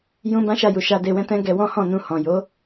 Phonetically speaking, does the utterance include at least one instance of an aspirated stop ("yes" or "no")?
no